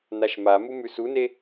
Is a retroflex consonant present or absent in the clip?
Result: absent